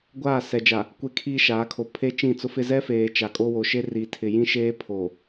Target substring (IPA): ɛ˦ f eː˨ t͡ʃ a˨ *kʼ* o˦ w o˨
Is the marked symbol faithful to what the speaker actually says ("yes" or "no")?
yes